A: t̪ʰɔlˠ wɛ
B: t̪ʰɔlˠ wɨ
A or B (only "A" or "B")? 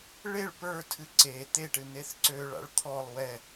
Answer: A